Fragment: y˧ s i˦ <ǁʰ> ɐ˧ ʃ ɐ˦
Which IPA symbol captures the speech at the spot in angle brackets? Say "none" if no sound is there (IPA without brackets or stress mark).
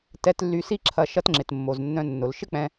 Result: ǁʰ